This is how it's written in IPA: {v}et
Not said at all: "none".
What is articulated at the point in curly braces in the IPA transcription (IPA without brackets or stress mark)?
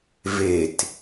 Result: v